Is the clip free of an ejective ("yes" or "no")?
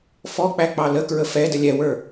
yes